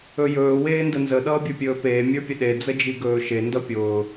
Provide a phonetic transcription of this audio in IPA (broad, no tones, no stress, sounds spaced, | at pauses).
ɵ j ɵː w eː n d ə n z ə ɗ ʌː bʲ ə˞ pʲ ɵː p eː mʲ ə˞ pʲ ə ɗ e d͡z ə d͡ʒ i ɡ ɵː ʃ e n d ʌ pʲ ʊː